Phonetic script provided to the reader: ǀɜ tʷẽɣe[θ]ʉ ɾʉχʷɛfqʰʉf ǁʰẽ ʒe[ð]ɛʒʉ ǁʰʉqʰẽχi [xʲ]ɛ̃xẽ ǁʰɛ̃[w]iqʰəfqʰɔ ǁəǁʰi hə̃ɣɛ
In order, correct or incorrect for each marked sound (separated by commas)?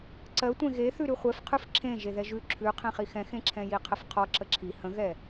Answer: correct, correct, incorrect, incorrect